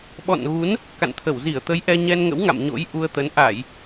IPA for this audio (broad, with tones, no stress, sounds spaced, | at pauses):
ɓ ɔ̰˧˨ n ɣ u˨˦ n | k a̰˧˨ n t̪ʰ ə˧˩ w z i˧˩ ə̯ t̪ ə˨˦ j ʔ ɛ˧ ɲ ɛ˧ n ŋ ə̰˧˥ w ŋ a̰˧˨ m ɲ o̰˧˥ j ʔ u˧ ə̯ t̪ ə˨˦ n ʔ a˧˩˨ j